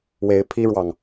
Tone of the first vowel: rising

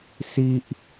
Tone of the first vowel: high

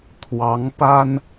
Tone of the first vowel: rising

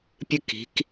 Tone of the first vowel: high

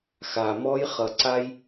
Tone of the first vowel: low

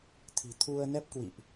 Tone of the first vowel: low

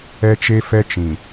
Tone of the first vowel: high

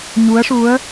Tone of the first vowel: rising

